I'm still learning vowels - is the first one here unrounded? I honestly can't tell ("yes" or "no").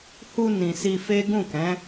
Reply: no